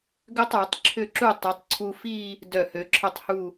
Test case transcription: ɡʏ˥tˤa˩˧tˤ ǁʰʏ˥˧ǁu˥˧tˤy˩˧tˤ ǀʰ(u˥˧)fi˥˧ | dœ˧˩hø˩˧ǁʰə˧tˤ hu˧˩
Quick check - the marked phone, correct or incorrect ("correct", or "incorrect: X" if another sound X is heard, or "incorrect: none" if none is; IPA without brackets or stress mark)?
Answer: incorrect: u˧